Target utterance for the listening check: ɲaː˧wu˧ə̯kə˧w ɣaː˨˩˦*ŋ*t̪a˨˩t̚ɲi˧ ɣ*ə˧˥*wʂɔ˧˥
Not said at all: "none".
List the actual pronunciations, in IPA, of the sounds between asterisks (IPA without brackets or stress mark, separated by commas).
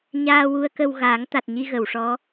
ŋ, ə˨˩˨